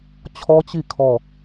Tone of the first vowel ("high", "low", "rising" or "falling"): high